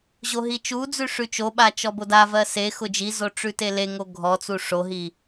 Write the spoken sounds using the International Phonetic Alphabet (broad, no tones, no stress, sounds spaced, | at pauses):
ʑ o ɦ i t͡ʃ u d͡z ʉ ʂ ʉ t͡ʃ o ɓ a t͡ʃ ɔ b o d a v ɜ s e x ʊ d͡ʒ i z o ʈ͡ʂ ʉ t e l e ŋ o ɡʱ ɔ t͡s u ʂ o ɦ i